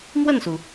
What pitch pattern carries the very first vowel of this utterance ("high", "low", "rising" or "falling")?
falling